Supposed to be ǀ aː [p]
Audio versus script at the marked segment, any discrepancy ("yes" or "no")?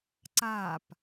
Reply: no